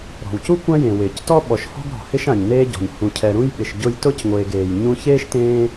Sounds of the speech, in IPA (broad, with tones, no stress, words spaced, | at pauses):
ɾɔ̤˩wcu˥kʷã˦jẽ˩ wɪː˩ctɔ˥ ɓɔ˨ʃhɔ̤˥ɡɾɔ̤˩ hɪ˦ʃ ã˩ɲneː˦ɟɔ̤˩ɲ hũ˨cʰɛ˨ɾũ˥jɓɪ˨ʃ ɟʊ˦j tʊ˥cŋʷeː˨ɡ eː˩j ɲũ˦ çeː˥ʃtẽː˦